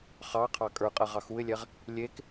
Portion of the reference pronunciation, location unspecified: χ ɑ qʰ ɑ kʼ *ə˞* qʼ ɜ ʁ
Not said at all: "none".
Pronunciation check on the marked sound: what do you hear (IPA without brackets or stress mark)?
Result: ə˞